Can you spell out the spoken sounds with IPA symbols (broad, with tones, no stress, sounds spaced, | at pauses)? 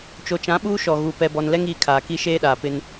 t͡ʃ o˨ t͡ʃ ã˨˦ ɓ uː˦ ʃ ɔ˨ ɣ u˨ p ɛ˨ b ɔ˨ n l ɛ˦ ŋ iː˨ kʰ aː˨ k i˦ ʃ eː˦ ɗ aː˨ p ɪ˦ n